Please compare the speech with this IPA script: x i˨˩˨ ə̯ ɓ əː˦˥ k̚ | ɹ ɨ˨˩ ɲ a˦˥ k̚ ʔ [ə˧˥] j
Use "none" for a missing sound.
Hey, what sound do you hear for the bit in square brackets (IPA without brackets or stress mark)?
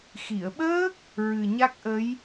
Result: ə˧˥